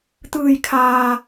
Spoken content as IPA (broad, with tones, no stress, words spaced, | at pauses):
t̪ɯː˩jkʰaː˩